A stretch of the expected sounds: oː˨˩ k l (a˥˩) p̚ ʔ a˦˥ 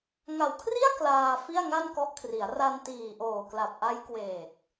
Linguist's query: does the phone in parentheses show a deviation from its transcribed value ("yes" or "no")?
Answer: yes